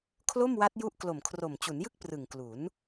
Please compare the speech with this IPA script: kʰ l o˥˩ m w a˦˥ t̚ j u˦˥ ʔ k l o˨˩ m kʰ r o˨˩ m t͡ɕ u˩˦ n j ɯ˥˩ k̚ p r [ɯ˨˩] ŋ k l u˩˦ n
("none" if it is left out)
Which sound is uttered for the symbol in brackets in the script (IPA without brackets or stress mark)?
ɯ˨˩